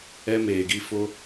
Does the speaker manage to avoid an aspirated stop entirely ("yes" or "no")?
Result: yes